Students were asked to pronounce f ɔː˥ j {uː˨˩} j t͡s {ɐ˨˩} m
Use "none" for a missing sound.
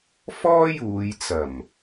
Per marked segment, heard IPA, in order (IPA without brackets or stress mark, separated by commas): uː˨˧, ɐ˨˩